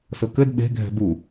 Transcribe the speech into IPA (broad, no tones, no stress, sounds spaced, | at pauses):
s ɤ k ɘ d ɓ e̤ ɡʱ ɛ̤ b u